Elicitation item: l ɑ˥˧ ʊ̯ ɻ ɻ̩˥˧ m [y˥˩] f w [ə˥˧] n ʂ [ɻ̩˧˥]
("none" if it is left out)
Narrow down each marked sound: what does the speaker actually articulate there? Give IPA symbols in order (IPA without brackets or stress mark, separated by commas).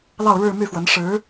y˥˩, ə˧˥, ɻ̩˧˥